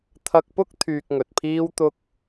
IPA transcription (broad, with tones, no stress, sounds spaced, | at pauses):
t̪ʰ ɐ˧ k̚ p ʊ˥ k̚ t̪ʰ yː˧ k̚ ŋ ɵ˨ t̚ pʰ iː˥ w t̪ ʊ˥ k̚